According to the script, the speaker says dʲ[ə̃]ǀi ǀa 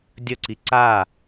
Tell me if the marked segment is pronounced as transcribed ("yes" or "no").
no